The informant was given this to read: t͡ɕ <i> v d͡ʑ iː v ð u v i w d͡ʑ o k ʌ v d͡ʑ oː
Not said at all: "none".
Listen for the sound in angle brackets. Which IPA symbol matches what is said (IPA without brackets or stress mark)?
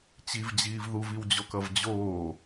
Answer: i